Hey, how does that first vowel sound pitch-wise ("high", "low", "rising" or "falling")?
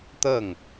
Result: falling